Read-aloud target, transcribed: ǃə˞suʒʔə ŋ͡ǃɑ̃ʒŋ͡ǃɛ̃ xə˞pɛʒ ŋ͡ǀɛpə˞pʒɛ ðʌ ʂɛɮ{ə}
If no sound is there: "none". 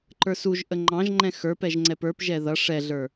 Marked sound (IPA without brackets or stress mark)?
ə˞